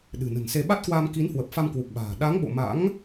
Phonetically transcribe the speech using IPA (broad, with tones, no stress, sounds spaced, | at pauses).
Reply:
ɗ ɨ̤˨˩ n ə̤˨˩ n s e˧ ɓ a˦˥ t̚ k w aː˧ m k i˨˦ n h w ə˨˩ p̚ f a˧ m k w u˨˩ k̚ ɓ a̤ː˨˩ ɗ a˨˦ ŋ ɓ o̰˧˨ m a̰˧˥ ŋ